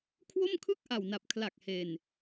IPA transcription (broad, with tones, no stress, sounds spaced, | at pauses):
kʰ w o˥˩ m kʰ ɯ˥˩ k̚ ʔ a˨˩ w n a˨˩ p̚ kʰ l a˨˩ k̚ h e˧ n